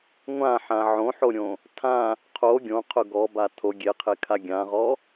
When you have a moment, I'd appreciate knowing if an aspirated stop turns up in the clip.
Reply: yes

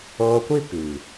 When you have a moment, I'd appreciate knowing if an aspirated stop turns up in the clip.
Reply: no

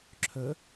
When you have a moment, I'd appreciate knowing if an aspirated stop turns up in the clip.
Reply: yes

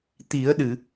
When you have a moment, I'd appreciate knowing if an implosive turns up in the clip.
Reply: yes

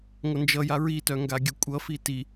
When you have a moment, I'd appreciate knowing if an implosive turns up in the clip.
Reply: no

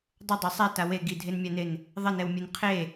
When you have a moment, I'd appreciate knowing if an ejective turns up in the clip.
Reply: no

